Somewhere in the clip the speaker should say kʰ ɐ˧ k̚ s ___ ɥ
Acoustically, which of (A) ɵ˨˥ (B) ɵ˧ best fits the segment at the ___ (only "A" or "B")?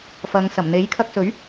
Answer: A